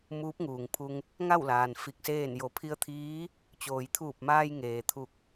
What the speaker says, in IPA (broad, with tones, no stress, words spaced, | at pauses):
muː˧˥p̚ŋuː˩ŋpʰu˧ŋ | ŋa˥˨wlaː˩n fi˧˩k̚seː˥˨n jo˩˧pʰi˧ə̯t̪ʰiː˧˥ | t͡ɕoː˩jt̪ʰuː˧˩p̚maː˧j ŋeː˩t̪ʰu˧˩k̚